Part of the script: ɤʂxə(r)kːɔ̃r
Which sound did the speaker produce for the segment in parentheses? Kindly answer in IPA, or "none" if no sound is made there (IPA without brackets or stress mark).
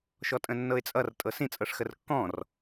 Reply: r